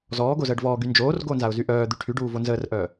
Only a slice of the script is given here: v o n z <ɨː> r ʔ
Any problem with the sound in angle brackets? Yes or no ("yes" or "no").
yes